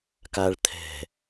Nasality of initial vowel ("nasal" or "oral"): oral